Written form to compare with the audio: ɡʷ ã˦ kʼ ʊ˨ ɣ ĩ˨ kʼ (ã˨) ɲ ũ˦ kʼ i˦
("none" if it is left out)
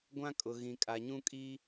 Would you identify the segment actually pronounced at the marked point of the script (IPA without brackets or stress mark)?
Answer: a˨